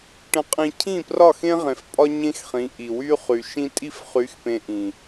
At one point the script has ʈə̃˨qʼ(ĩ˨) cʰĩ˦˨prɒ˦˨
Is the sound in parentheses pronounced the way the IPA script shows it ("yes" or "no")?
yes